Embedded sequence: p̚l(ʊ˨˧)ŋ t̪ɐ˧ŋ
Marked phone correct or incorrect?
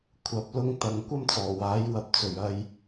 incorrect